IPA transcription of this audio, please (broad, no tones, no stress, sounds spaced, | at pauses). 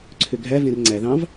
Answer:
ǀʰ ø ɡʱ æ v ẽ r ŋ͡ǀ æ ð ɑ̃ v